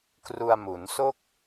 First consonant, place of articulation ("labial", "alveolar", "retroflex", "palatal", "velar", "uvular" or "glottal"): velar